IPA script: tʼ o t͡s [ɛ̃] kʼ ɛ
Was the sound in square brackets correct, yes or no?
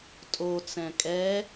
yes